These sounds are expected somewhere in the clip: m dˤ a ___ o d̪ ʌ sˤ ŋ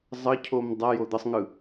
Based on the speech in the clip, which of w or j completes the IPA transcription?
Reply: j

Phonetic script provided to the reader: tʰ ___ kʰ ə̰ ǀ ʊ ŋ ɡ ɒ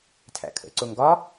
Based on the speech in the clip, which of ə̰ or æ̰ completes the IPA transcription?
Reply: æ̰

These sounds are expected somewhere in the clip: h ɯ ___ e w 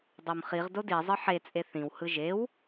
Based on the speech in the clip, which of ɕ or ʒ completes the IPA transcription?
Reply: ʒ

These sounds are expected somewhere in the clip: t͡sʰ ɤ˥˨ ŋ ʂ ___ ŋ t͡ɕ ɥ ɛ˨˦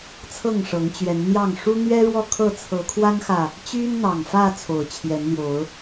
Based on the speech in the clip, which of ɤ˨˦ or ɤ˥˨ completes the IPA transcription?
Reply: ɤ˨˦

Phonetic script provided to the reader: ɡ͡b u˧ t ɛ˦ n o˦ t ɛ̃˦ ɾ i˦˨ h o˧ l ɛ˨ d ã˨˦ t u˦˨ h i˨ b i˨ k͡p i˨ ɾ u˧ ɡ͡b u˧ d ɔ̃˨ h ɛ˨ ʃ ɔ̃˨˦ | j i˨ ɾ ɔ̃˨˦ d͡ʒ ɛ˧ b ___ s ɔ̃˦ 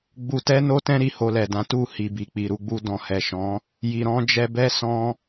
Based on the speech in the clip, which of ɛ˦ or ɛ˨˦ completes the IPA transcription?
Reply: ɛ˦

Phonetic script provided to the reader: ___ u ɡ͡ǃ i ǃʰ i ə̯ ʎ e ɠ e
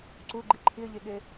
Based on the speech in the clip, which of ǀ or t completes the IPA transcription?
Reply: ǀ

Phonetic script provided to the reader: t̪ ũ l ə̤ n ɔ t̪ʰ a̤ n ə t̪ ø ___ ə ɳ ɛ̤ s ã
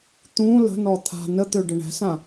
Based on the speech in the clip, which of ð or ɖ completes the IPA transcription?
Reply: ɖ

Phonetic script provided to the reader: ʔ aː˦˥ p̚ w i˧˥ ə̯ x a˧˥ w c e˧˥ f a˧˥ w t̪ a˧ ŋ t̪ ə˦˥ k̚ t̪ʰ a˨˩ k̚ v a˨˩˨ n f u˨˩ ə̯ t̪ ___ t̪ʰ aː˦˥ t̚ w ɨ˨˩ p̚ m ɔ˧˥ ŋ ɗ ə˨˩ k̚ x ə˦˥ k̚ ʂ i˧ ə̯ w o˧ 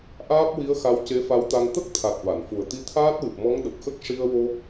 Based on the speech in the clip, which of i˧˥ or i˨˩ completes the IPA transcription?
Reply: i˧˥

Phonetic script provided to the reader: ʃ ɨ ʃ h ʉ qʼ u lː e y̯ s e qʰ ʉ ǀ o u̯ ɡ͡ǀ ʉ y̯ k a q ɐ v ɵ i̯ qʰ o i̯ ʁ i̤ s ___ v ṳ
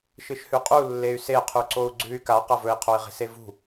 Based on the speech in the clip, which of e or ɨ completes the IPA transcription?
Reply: e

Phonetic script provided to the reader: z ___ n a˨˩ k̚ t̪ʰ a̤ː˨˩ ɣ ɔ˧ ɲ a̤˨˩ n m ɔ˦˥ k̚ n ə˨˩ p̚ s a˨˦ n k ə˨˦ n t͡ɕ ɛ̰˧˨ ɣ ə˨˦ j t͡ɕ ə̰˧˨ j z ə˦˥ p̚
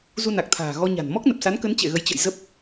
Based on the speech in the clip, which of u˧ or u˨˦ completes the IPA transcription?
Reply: u˧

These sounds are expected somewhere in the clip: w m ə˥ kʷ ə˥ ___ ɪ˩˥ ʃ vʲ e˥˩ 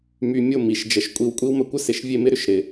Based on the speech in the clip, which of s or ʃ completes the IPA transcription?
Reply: s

